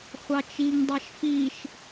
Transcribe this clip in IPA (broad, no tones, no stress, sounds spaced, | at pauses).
χʷ ɑ t͡ʃ i ŋ dˤ ɑ ʃ f i ʃ